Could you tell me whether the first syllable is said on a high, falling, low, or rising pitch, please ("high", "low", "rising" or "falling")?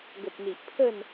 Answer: low